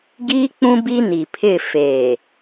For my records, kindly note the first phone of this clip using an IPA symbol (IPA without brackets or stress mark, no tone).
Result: ɡ